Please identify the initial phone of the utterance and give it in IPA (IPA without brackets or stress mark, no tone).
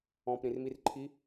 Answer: ɔ̃